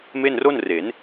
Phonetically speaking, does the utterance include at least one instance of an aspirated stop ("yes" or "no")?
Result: no